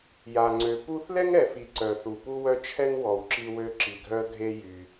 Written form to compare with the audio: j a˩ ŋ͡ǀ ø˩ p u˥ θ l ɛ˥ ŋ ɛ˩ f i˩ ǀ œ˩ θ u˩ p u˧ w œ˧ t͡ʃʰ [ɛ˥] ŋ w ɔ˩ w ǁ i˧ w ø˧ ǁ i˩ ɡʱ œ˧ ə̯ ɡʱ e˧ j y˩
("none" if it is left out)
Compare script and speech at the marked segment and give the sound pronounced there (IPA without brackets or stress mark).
ɛ˥